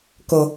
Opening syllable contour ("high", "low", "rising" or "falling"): low